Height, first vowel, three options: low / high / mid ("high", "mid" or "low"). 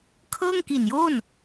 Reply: mid